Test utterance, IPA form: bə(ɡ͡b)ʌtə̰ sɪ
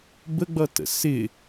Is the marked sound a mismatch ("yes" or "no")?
no